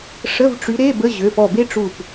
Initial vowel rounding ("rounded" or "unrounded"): unrounded